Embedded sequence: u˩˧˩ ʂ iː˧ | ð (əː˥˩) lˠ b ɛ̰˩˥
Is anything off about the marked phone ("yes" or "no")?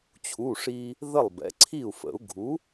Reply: yes